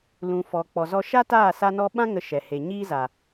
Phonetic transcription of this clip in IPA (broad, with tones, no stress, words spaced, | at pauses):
lũ˨fɔ˨k͡pɔ˨ zɔ˧ ʃa˦taː˦˨sa˧ nɔ˧ɓã˦ ŋə˧ʃɛ˨ he˨ɲiː˦za˨